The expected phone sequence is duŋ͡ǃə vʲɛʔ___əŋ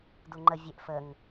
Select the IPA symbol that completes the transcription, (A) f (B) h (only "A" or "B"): A